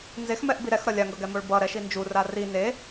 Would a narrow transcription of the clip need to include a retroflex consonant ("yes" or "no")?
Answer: yes